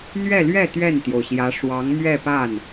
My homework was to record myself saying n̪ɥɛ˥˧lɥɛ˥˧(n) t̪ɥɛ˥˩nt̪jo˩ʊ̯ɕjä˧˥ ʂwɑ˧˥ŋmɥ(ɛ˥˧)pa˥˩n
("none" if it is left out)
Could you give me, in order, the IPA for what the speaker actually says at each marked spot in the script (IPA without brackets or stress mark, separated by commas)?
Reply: none, ɛ˥˧